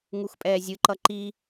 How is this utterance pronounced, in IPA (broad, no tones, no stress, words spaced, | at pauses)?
ŋuxpʼɛːzʲɯǃʌ ǃi